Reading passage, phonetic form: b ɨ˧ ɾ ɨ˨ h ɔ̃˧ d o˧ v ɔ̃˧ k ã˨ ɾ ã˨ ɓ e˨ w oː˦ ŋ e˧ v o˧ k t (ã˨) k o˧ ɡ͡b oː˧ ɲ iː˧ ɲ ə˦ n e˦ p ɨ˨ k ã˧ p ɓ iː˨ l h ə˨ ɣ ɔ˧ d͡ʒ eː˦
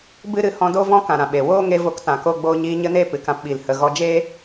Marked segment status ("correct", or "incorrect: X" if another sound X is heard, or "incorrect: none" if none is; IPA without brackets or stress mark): correct